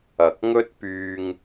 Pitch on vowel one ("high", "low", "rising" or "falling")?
low